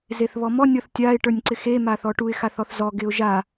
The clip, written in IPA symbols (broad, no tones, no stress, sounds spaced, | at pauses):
z e θ β ɔ m ɔ nʲ ɔ θ tʲ a ɪ̯ ʈ ə˞ nʲ ǀ ɪ x e m a θ ɔ ʈ u ɪ̯ x a θ ɔ θ z ɔ ɡ ɪ ʊ̯ ʒ a